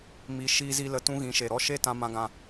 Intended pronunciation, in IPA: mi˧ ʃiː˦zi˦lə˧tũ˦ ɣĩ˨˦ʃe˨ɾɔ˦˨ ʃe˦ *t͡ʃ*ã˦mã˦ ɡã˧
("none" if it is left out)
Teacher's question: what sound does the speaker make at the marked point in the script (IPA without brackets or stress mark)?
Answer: t